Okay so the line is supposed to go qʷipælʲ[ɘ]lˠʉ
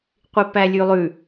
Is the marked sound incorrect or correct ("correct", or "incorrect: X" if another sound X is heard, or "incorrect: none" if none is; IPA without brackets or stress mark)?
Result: incorrect: ʉ